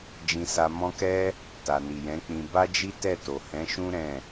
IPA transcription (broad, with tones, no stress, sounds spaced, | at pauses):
d͡ʒ ĩ˧ s a˧ m ɔ̃˦ k ɛ˦ | t a˨ n i˨ j ɛ̃˨˦ k͡p ĩ˧ b a˦ d͡ʒ i˦ t ɛ˦˨ t o˨ h ɛ̃˨˦ ʃ ũ˦ ɾ ɛ̃˦˨